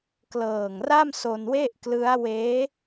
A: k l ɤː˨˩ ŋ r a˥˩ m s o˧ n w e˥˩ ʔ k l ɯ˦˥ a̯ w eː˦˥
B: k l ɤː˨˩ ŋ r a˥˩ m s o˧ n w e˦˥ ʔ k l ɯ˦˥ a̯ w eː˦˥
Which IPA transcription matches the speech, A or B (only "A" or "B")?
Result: A